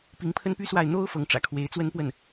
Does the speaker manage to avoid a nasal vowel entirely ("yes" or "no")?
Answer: yes